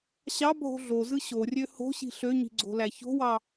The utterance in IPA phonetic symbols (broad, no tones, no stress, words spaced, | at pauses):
ɕɑ bʱo̤ɮozɯ ɕorʲø ho̤ɕi̤ ɬøɲi̤ ɡ͡ǀo̤læço̤wɑ